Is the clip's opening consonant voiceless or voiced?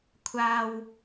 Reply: voiceless